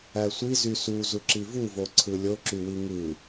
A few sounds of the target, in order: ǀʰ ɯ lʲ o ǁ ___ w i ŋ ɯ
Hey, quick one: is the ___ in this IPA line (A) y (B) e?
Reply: A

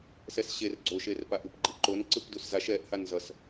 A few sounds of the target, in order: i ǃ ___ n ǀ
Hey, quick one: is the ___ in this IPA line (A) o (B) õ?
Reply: A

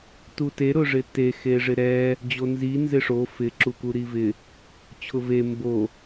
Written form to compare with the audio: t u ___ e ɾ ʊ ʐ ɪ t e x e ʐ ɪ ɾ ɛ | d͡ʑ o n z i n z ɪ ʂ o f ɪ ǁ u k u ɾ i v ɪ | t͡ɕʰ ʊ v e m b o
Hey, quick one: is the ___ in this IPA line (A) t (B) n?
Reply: A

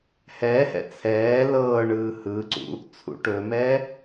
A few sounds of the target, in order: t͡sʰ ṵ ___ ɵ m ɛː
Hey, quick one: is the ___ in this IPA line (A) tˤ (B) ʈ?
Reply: B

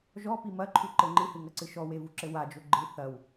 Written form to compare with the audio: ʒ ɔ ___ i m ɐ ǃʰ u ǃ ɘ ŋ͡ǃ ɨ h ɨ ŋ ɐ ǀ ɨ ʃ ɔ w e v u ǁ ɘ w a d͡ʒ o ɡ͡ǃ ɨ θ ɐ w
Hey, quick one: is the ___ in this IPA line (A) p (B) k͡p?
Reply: A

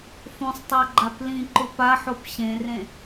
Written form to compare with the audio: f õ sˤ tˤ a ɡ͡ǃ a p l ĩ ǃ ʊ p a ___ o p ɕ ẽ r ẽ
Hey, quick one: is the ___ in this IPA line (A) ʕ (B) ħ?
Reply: B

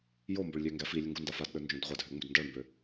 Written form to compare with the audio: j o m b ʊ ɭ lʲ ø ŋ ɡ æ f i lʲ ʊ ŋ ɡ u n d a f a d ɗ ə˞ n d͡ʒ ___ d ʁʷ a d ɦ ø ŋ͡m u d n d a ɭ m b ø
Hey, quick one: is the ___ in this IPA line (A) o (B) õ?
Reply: B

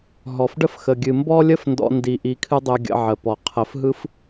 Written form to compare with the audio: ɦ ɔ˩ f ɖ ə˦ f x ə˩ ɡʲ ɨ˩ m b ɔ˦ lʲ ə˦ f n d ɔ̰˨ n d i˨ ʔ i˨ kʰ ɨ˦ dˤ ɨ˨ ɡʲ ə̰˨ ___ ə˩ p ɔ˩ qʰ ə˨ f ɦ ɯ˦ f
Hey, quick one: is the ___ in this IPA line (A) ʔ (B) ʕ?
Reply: B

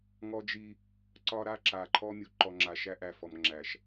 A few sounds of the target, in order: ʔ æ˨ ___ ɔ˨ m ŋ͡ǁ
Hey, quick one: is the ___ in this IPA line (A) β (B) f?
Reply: B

